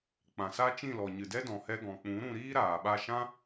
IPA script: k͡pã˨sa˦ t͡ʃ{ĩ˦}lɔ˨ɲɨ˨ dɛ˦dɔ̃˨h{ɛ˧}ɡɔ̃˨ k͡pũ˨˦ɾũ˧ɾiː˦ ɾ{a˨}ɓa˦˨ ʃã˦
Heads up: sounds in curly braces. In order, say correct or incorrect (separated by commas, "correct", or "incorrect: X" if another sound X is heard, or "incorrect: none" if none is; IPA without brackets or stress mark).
incorrect: ĩ˦˨, correct, incorrect: aː˨